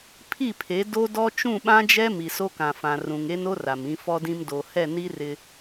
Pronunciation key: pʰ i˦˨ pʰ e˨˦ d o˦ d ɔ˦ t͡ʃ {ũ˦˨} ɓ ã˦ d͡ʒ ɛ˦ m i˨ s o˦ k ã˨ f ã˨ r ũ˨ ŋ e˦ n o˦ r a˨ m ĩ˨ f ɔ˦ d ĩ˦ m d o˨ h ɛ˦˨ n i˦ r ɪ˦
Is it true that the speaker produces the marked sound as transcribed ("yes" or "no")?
yes